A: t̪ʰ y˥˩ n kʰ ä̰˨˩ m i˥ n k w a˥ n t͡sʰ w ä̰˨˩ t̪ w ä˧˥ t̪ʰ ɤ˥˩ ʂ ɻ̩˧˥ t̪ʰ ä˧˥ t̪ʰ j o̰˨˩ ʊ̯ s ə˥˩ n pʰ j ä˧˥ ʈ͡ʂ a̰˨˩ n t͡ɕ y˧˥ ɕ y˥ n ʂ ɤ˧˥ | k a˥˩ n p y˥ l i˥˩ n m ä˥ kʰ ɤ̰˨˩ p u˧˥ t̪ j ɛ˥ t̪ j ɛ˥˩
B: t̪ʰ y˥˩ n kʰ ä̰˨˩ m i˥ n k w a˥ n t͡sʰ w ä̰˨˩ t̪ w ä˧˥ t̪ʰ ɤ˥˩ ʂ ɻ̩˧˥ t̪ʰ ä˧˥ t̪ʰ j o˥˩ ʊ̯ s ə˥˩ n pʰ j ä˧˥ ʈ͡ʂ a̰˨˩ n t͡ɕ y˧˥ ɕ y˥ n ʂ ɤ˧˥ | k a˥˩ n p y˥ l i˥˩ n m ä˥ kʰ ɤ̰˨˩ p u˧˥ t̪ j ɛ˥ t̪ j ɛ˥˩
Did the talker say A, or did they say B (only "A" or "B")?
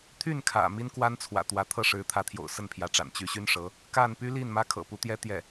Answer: A